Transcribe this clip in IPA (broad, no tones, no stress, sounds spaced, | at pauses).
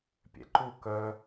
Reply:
pʲ ɛ̰ ǃ u k œ